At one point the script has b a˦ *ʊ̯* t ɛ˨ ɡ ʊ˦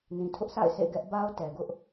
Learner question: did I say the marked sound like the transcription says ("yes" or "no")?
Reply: yes